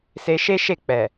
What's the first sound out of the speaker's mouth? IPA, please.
s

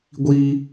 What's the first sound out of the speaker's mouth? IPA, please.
ɡʷ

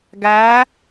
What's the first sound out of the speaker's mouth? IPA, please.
ɡ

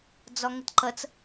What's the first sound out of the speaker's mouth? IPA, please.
d͡z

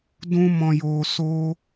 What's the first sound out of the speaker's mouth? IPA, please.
d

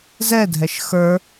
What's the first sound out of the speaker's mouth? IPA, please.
z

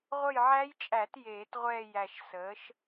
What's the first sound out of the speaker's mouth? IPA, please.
ʁʷ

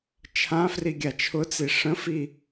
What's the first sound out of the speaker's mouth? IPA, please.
t͡ʃʰ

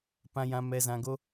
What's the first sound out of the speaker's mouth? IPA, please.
p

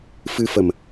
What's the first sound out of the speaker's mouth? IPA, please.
f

